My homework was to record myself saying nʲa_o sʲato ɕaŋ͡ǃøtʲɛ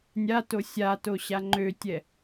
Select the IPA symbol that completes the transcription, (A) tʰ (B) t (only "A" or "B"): B